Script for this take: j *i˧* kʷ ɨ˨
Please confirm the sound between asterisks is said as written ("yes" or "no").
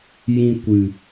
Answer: no